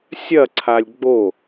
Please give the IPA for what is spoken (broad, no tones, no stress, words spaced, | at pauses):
sʲɐ ǀʰalʲɡ͡bo